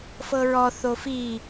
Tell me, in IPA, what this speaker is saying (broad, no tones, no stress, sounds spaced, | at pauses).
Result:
f ɤ ɹ ɔ θ o f i